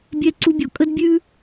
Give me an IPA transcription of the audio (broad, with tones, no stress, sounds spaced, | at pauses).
bʲ ɛ˧ ǀ u˧ bʲ ɔ˩ kʼ ə˥ d bʲ ʉ˥